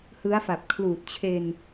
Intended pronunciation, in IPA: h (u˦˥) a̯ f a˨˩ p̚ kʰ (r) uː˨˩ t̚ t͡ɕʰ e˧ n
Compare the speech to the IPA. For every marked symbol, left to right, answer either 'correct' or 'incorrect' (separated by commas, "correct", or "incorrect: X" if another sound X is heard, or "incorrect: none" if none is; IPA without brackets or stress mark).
incorrect: ɯ˦˥, incorrect: l